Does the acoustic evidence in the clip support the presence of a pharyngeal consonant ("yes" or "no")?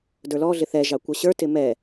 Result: no